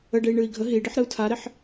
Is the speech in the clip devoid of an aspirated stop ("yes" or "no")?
no